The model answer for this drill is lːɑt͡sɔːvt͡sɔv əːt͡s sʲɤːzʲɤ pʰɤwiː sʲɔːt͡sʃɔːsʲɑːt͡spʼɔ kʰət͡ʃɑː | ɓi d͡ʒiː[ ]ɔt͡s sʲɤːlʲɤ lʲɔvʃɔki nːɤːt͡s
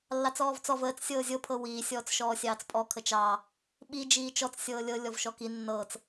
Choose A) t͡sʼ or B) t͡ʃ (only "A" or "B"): B